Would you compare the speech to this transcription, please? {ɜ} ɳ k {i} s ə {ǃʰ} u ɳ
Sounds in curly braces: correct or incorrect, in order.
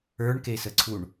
incorrect, incorrect, incorrect

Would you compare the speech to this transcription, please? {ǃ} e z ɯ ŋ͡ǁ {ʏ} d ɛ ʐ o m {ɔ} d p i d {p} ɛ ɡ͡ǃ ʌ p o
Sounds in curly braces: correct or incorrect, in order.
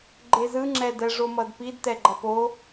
incorrect, incorrect, incorrect, incorrect

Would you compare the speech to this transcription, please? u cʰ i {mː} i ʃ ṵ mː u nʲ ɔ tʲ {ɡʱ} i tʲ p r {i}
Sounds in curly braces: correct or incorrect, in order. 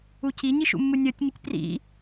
incorrect, incorrect, incorrect

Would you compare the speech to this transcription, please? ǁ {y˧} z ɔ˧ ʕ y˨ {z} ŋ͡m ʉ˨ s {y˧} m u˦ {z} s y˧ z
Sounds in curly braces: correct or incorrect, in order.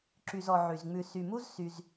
correct, correct, incorrect, correct

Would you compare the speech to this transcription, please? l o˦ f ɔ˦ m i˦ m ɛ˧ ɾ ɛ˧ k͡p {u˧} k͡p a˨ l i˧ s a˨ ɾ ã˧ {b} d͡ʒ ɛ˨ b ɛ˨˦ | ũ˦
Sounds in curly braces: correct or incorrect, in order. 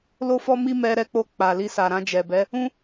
incorrect, incorrect

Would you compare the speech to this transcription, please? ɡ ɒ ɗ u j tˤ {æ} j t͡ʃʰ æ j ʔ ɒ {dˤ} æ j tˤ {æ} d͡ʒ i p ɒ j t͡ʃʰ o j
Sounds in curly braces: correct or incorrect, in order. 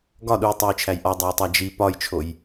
correct, correct, correct

